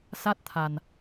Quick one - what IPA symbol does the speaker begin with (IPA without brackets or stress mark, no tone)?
s